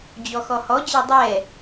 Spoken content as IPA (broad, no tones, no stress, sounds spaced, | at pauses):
d͡ʑ ɔ x ɔ h ɔ d͡ʑ ɛ dˤ ɛ